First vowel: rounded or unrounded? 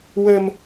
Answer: unrounded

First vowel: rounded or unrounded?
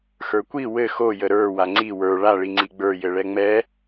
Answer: unrounded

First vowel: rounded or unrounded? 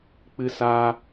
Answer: unrounded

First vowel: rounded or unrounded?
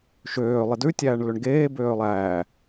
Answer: rounded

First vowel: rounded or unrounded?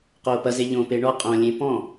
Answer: rounded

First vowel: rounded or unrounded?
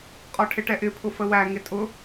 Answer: rounded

